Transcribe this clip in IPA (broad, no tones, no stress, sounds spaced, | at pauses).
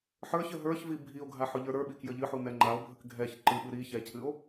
ħ ə˞ ç ə ɦ ə˞ ç v i bʱ i o̯ ɡʱ a ħ ʊ ʎ ə˞ ɾ ə˞ ɓ i k j ə ʎ ɨ ħ u n ɛ ŋ͡ǃ a o̯ bʱ ə k ɡʱ ɛ ç ǃ ɨ ɓ ɨ ɾ i ç ɛ cʰ ɨ o̯